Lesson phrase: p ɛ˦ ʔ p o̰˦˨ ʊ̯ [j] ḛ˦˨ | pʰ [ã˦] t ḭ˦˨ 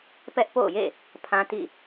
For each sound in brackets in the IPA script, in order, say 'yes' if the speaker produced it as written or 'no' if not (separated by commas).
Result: yes, yes